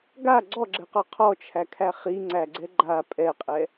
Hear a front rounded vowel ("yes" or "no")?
no